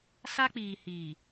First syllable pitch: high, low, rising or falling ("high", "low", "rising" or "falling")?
high